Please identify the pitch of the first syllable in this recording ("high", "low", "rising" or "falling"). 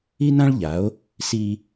high